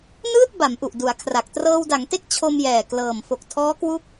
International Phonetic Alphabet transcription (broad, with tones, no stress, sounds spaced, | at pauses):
n ɯː˥˩ t̚ b a˩˦ m ʔ u˨˩ ʔ d u˩˦ a̯ kʰ r a˨˩ k̚ t r ɤː˧ w d a˩˦ ŋ t e˥˩ k̚ t͡ɕʰ o˧ m j ɛː˨˩ k l ɤː˨˩ m f o˨˩ k̚ tʰ ɔː˦˥ k w u˦˥ k̚